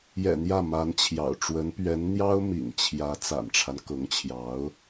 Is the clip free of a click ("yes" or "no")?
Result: yes